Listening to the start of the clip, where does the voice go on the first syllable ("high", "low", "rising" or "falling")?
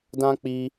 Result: high